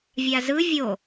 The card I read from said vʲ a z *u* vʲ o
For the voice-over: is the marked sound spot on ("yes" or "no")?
no